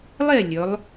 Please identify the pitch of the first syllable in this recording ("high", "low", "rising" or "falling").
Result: falling